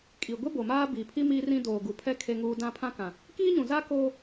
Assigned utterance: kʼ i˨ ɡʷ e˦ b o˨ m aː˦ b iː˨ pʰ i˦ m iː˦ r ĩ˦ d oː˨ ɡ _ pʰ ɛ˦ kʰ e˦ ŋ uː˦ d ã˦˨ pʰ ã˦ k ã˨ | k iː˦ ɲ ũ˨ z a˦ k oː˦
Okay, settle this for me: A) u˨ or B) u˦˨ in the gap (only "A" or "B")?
A